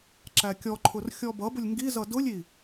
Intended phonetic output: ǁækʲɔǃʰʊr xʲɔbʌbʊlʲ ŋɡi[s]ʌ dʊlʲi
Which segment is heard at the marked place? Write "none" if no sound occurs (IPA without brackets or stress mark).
z